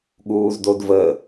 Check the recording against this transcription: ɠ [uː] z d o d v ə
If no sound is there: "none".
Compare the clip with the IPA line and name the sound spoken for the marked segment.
uː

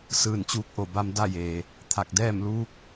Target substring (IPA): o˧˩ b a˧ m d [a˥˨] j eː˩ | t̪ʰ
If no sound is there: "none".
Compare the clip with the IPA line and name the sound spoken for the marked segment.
a˥˨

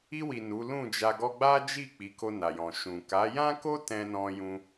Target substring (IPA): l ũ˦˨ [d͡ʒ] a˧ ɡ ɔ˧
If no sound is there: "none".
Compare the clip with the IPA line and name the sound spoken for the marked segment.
d͡ʒ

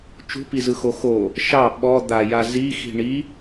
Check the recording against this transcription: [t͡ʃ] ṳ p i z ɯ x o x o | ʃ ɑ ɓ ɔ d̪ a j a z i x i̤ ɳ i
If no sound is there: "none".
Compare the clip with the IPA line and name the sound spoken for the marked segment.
t͡ʃ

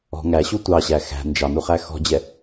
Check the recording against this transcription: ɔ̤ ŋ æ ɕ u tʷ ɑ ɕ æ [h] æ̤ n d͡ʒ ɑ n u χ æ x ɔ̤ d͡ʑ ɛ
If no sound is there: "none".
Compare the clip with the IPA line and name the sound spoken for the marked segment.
x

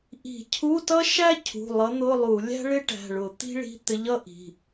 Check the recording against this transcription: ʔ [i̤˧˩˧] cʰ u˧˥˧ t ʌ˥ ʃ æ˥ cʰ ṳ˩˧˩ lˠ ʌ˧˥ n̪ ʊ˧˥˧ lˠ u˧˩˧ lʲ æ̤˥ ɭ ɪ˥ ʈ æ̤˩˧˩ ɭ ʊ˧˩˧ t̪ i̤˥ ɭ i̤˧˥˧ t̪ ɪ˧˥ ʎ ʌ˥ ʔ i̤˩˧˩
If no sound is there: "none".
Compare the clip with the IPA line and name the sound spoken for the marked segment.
i̤˧˩˧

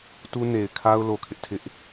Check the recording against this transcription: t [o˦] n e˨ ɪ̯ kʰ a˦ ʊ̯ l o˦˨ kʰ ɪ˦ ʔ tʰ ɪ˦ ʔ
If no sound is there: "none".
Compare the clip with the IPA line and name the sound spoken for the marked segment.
u˦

